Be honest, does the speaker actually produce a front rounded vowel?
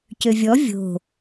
yes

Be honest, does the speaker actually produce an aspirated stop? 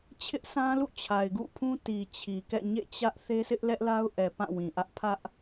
yes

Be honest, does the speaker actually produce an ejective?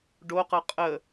yes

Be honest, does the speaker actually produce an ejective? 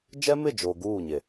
no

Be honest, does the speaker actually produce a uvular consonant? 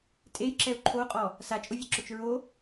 yes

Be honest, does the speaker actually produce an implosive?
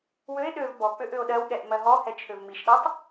yes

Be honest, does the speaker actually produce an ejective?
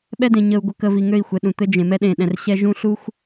no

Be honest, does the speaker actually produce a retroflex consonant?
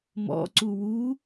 no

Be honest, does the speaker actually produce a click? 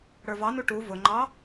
yes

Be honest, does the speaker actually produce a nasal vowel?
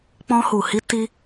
yes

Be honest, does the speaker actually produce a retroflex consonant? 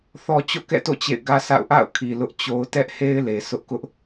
no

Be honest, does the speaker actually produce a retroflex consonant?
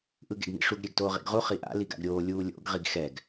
yes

